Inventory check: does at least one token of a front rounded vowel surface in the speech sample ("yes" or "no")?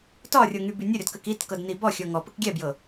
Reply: yes